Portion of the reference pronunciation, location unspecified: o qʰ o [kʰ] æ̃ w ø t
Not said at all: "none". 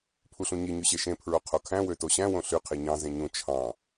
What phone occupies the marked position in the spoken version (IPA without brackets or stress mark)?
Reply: kʰ